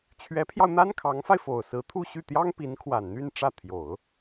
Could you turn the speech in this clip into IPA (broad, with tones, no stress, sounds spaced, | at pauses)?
t͡ɕʰ ɥ ɛ˧˥ pʰ j ɑ˧ ʊ̯ n̪ a˥ n kʰ ɑ˧˥ ŋ f a˧ ɪ̯ f o˨˩ ʊ̯ s ɹ̩˧˥ t̪ʰ u˥˧ ɕ y˥˩ t̪ j ɑ˥ ŋ p i˧˥ n kʰ w a˨˩ n n̪ y˥˧ n ʈ͡ʂ ä˥˩ t̪ʰ j o˨˩˦ ʊ̯